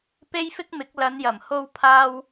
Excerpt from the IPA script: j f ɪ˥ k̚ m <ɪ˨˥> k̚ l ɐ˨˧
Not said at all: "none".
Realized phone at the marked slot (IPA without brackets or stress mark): ɪ˨˥